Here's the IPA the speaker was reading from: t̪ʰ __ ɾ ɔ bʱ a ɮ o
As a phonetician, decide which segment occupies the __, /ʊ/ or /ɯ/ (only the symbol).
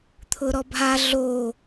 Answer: ʊ